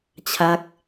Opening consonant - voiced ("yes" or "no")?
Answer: no